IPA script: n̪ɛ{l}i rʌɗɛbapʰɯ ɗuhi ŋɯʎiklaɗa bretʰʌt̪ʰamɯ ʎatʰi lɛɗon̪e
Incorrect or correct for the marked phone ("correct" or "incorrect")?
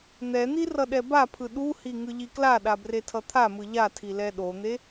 incorrect